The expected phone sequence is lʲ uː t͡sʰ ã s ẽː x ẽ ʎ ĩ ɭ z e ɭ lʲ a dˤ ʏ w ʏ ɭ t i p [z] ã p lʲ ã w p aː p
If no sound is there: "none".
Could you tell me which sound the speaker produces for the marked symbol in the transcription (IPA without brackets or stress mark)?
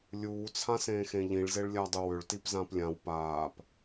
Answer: z